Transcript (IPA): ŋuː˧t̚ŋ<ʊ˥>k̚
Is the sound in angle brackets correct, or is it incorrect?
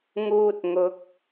incorrect: ʊ˨˥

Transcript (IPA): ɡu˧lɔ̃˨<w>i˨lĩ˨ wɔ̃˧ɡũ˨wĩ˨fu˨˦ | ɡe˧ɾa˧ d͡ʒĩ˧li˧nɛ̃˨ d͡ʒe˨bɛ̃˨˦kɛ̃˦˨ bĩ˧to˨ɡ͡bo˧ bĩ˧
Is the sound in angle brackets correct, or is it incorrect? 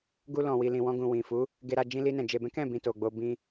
correct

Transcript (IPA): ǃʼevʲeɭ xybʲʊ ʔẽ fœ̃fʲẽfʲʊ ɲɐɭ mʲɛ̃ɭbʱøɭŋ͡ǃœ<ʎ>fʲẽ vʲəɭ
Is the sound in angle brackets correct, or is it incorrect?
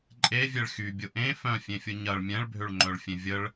incorrect: ɭ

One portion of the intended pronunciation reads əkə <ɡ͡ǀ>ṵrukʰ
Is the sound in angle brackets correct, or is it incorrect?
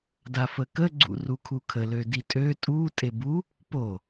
correct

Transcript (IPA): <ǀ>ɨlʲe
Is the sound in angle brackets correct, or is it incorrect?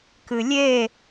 incorrect: k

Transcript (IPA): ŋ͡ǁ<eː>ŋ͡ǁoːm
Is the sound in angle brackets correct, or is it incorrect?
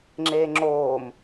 correct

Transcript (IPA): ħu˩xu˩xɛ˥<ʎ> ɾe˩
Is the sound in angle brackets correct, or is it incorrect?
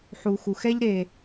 correct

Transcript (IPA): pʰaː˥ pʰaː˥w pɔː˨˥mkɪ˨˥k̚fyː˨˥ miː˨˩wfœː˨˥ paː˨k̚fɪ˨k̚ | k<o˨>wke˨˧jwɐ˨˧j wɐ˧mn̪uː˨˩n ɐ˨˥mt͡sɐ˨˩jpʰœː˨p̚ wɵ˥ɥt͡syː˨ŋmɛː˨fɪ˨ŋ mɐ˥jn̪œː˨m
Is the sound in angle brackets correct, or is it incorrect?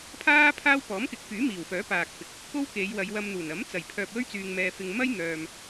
incorrect: o˥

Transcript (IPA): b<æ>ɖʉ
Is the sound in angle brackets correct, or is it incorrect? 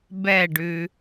incorrect: ɛ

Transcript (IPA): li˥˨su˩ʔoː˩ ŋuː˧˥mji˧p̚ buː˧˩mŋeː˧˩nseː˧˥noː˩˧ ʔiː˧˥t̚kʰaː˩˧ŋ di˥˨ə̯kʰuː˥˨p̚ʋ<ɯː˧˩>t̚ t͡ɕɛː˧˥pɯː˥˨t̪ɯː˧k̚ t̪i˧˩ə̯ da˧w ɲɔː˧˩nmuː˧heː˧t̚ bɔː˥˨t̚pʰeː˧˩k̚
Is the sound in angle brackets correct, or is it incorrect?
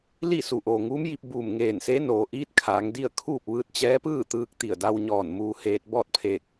incorrect: ɯː˧˥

